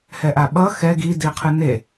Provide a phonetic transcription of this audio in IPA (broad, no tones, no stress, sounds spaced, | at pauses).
h ɛ ʔ a ɓ ʌ x ɛ ɡ i d i qʰ ɯ n e